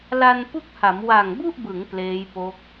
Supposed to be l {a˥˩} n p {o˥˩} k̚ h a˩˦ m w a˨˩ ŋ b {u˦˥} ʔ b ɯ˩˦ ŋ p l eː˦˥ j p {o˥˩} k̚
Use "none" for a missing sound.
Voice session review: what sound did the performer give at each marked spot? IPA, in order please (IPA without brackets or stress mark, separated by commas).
a˧, u˥˩, u˥˩, o˦˥